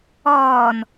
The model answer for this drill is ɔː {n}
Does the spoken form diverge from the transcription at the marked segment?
no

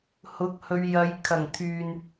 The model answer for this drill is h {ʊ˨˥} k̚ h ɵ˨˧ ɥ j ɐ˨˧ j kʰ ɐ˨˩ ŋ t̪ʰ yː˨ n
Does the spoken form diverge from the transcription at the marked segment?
no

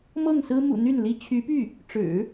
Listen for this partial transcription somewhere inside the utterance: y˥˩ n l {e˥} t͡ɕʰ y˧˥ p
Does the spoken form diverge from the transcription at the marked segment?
yes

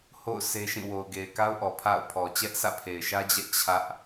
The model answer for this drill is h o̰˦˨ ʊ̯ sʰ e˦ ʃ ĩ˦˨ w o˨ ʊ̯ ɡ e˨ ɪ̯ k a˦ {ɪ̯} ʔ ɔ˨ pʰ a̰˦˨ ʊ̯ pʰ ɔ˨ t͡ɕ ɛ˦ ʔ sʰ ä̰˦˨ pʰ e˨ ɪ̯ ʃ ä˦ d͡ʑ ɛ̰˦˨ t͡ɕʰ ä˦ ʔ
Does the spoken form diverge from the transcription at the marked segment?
yes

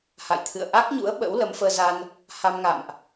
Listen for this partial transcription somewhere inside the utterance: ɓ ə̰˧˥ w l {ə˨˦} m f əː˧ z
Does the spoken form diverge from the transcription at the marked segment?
no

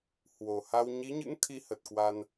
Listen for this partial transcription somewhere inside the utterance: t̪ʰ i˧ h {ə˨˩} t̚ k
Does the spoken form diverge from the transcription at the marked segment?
no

